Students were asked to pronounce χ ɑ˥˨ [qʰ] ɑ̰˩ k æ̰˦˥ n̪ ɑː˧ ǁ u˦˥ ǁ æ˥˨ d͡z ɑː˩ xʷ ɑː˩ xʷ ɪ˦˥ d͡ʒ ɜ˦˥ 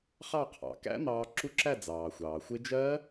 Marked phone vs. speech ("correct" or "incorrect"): correct